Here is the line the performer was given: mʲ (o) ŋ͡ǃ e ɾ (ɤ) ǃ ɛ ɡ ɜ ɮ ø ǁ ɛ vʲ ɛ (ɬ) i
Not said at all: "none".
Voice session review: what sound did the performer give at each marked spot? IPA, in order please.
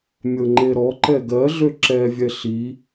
ɤ, ɔ, ɬ

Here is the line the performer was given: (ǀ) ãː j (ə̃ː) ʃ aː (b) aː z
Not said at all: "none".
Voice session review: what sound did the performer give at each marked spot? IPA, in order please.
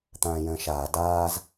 t̪, ə̃ː, d

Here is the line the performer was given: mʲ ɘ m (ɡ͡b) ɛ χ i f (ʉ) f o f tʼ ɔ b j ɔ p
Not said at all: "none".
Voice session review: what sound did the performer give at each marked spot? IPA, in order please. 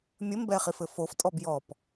b, ɘ

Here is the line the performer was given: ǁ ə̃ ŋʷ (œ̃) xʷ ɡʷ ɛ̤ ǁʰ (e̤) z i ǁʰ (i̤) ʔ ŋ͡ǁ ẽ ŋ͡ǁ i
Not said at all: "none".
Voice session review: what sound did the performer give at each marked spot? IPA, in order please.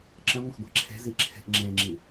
ə̃, e̤, e̤

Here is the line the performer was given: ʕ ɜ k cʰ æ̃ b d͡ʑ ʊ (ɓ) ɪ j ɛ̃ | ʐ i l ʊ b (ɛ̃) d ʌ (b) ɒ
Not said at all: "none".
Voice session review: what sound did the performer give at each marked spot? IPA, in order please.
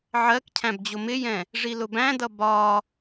m, æ̃, b

